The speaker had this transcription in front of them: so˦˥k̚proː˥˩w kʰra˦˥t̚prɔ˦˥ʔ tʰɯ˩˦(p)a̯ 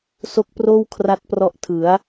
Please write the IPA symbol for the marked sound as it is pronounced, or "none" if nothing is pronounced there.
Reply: none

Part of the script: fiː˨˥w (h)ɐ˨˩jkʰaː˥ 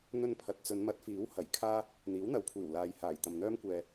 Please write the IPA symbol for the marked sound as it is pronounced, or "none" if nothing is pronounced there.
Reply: h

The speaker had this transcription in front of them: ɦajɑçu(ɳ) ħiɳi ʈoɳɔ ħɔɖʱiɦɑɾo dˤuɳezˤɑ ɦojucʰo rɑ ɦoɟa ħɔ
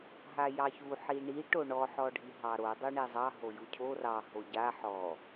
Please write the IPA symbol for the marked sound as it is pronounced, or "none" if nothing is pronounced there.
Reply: none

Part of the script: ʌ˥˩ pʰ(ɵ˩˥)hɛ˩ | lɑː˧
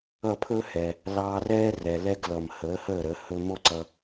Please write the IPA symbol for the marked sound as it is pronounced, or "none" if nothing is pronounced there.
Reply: ɵ˥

